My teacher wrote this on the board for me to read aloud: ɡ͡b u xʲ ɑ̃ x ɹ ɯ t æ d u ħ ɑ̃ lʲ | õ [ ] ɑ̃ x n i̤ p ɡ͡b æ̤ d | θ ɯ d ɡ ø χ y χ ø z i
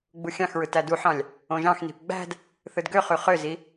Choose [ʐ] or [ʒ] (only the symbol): ʒ